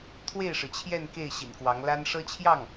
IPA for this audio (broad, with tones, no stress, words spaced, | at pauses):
t̪ʰwe˥˩ɪ̯ʂɻ̩˩t͡ɕʰjɛ˥˧n ke˥˩ɪ̯ ɕḭ˨˩nkwɑ˧˥ŋ la˥n ʂɤ˥t͡ɕʰjɑ˥˩ŋ